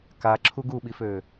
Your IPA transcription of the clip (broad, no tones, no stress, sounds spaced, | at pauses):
k a ǁʰ u ɡ u ɓ i f ø